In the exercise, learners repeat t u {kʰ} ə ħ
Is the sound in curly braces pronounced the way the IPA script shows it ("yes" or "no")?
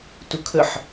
yes